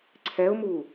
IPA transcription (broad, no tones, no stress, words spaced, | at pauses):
ǀʰɛʊ̯mu